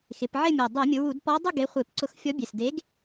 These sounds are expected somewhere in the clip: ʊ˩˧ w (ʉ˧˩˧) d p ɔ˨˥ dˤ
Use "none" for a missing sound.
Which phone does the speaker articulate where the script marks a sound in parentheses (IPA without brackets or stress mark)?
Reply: u˧˩˧